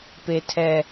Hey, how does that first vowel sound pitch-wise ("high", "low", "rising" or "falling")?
high